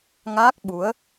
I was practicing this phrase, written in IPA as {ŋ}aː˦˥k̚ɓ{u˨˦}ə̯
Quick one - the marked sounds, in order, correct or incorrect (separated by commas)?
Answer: correct, correct